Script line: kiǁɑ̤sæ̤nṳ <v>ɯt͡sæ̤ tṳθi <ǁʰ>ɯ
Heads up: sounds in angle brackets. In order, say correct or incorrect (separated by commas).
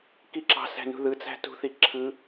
incorrect, correct